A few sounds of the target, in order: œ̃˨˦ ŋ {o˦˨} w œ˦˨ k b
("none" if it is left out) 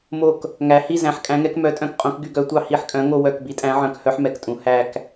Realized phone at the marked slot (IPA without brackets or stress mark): o˦˨